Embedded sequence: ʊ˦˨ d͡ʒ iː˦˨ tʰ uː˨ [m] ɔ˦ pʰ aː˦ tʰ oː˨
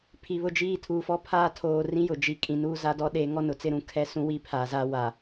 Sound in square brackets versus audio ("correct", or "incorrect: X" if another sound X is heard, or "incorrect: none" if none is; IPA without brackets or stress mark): incorrect: f